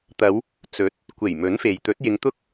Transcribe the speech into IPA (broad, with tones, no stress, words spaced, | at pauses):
t̪ɐ˨˧w | t͡sɵ˨˥t̚ | kʷe˨˩jmɵ˨˥n fe˨j t̪ɵ˨˥t̚jɪ˨˧ŋt̪ʊ˥k̚